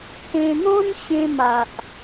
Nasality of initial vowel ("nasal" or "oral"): nasal